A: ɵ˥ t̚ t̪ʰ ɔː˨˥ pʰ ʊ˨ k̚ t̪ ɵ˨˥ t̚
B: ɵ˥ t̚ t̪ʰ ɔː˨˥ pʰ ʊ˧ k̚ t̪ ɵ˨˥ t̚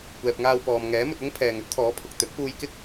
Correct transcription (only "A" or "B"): A